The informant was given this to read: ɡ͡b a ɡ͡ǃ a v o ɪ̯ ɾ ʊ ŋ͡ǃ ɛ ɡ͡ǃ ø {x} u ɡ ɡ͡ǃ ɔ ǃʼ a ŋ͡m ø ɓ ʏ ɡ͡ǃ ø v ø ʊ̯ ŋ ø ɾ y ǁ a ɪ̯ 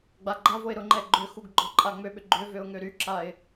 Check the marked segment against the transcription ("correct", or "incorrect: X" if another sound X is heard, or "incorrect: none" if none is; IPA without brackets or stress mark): correct